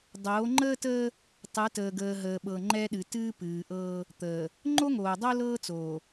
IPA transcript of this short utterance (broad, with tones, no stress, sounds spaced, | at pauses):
dˤ oː˨˦ ŋ͡ǃ əː˦ t əː˦ | tˤ ɨ˨˦ t əː˨ ɡ əː˨ ɦ əː˨ ɓ ɤ˨ ŋ͡ǃ ɛ˦ ɗ ɨ˨ t ɨː˦ p ɨː˨ ʔ ɤː˦ | t̪ əː˨ | ŋ͡ǃ o˦ ŋ oː˨ dˤ o˦ l ɤː˦ t͡s oː˨